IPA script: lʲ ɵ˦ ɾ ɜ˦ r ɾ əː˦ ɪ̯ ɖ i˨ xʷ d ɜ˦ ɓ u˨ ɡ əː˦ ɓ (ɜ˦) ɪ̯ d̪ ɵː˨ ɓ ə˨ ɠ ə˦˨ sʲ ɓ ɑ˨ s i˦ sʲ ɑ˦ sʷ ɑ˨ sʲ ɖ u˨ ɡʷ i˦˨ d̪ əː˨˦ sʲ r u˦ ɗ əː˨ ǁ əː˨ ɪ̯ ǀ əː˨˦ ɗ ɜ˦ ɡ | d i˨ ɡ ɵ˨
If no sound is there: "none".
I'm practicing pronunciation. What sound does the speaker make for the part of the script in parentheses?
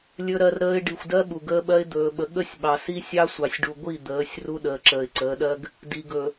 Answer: ɜ˦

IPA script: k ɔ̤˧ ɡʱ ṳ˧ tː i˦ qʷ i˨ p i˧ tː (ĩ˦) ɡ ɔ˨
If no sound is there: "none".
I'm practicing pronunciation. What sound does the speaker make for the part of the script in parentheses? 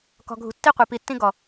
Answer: ĩ˦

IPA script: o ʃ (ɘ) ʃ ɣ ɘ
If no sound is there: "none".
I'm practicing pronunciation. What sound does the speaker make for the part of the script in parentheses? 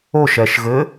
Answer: ɛ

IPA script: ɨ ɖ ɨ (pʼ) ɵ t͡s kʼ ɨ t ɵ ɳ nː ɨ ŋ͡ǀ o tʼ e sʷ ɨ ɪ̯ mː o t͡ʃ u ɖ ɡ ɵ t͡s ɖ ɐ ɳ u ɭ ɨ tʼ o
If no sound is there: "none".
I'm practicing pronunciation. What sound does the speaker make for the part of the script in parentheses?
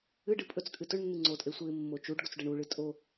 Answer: pʼ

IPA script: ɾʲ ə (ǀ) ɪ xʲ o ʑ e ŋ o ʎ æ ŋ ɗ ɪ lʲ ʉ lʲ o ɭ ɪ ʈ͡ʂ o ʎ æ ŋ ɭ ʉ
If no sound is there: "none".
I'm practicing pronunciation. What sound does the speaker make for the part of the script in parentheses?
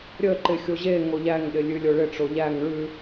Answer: ǃ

